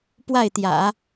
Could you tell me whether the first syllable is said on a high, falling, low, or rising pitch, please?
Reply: falling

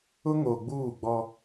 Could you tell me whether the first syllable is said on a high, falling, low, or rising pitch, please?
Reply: high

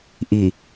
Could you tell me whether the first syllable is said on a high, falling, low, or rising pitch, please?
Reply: low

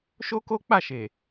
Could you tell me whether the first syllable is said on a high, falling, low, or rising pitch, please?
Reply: high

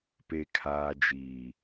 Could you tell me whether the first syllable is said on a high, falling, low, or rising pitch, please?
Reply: low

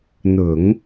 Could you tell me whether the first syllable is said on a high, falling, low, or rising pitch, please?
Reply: low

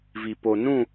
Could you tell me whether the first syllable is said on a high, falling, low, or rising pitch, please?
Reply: low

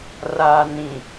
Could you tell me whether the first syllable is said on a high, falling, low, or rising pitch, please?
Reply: low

